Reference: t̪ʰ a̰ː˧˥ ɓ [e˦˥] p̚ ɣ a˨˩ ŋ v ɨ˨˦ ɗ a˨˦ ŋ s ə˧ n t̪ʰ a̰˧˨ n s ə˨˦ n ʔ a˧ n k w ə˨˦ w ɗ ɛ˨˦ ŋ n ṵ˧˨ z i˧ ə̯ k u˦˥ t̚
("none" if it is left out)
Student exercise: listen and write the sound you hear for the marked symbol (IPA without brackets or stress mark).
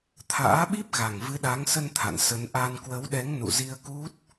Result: i˦˥